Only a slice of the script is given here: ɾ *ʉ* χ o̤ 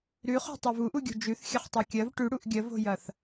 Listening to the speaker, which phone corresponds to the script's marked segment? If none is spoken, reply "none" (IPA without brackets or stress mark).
ʉ